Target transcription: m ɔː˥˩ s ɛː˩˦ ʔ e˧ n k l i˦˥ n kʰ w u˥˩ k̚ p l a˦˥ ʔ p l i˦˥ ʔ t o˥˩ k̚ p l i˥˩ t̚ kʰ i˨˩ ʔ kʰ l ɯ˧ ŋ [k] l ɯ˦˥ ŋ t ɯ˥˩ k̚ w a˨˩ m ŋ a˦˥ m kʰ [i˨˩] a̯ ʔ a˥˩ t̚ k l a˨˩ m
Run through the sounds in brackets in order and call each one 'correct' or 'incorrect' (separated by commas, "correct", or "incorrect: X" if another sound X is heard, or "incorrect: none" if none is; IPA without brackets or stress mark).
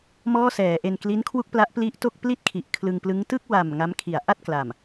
incorrect: p, correct